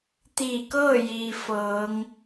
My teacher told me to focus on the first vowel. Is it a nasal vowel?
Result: no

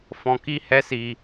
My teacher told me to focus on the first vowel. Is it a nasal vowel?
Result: yes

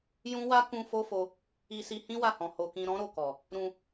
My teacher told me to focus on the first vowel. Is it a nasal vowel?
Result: yes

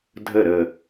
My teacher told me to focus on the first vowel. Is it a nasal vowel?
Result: no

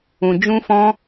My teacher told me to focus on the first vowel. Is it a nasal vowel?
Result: yes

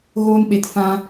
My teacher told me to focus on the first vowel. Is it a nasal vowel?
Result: no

